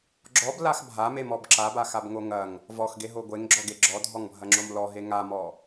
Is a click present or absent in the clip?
present